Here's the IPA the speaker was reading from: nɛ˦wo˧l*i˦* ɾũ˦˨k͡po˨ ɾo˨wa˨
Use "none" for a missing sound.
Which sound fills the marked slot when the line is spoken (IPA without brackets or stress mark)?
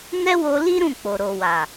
i˦